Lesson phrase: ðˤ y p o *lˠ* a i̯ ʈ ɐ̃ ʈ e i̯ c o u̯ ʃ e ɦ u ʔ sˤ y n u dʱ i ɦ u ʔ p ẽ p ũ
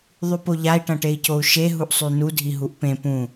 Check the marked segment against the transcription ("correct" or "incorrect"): incorrect